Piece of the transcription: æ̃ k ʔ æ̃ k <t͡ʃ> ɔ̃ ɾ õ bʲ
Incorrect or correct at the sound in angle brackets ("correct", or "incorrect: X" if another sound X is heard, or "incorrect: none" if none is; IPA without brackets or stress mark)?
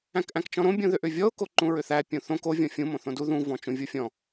correct